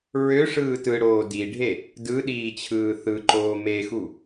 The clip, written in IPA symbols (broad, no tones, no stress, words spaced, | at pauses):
ɹø ʂɯːtɯɽoː diɖʱe | dɯ ɗiːt͡ɕʰɯːθɯǃoː mexu